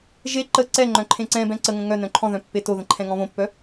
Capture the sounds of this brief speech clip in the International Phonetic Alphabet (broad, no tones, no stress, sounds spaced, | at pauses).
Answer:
ʒ e ǃ ə ǀ ɛ ŋ͡ǃ œ̃ ǃʰ ẽ ǀ ɛ̃ b ɛ̃ ǀ ə ŋ ə̃ ŋ œ n œ̃ ǃʰ ɔ̃ ð œ̃ pː e t o ð ə̃ ǃʰ ɛ̃ ŋ ɔ̃ β õ pː œ